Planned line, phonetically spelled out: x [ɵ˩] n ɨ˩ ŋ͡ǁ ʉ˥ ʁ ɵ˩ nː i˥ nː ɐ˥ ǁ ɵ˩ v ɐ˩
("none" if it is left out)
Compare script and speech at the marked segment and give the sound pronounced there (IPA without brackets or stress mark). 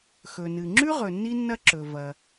ɵ˩